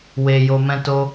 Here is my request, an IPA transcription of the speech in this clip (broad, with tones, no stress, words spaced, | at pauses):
we˧jo˧ mɛ̃˦to˦